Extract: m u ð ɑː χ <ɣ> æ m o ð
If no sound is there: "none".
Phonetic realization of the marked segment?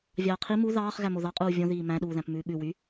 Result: ɣ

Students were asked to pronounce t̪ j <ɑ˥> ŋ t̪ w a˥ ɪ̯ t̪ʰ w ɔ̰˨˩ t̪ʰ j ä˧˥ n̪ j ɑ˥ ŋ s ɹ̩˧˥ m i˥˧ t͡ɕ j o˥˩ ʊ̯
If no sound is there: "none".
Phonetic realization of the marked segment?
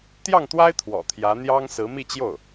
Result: ɑ˥˩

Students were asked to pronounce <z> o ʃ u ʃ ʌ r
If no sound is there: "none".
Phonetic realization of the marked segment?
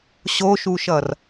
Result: ɕ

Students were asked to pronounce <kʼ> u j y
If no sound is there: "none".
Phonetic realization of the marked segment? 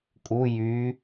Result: kʼ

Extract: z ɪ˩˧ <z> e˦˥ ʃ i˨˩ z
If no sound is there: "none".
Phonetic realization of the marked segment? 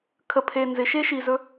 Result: ʃ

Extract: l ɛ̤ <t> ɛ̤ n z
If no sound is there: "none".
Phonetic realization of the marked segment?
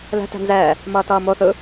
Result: t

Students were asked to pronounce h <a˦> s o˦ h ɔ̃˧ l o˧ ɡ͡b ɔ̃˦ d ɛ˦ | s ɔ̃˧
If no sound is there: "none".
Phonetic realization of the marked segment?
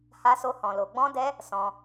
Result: a˦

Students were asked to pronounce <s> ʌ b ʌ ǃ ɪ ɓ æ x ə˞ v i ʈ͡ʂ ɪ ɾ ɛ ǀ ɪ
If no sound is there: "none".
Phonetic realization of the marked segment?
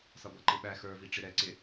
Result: s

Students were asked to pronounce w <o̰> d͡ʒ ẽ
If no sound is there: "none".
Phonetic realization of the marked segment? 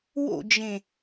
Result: o̰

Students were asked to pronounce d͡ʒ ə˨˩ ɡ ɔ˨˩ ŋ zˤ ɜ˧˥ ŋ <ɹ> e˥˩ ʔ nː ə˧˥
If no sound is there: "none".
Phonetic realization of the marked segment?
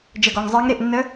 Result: ɾ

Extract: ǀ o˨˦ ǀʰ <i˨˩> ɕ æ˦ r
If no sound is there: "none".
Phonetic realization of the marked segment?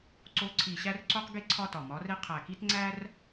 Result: i˨˩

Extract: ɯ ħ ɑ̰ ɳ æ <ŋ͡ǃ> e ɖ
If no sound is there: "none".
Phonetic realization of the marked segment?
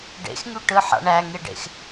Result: ŋ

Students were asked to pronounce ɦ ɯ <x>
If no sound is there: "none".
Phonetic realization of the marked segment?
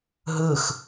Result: x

